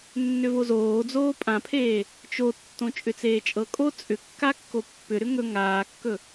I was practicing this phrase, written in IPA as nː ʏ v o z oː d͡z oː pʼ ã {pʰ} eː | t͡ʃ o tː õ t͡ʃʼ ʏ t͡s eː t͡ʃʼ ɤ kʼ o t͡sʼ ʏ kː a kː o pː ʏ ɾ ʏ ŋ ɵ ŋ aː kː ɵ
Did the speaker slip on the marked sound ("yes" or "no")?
no